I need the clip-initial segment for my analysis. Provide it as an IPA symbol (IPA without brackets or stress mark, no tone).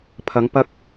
pʰ